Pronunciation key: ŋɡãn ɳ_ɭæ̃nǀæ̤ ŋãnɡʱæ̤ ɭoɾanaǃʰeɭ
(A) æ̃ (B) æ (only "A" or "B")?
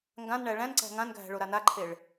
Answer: B